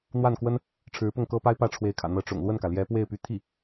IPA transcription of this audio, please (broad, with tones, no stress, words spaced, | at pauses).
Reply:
n̪wa˥˩nkwə˥n | ʈ͡ʂʰɻ̩˧˥pʊ˥˩ŋkɤ˥pa˥ɪ̯ pä˥˩ʈ͡ʂʰwe˧˥ɪ̯kʰä̰˨˩ n̪ɤ˧˥ʈ͡ʂʊ̰˨˩ŋ lwə˥˩nkä˩ljɛ˧˥pwe˥˩ɪ̯ py˧˥t̪ʰi˥˩